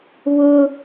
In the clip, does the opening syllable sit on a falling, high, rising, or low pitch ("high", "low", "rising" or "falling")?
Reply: high